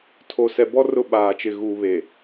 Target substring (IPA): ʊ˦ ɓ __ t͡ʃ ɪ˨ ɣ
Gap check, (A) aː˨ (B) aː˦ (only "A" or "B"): A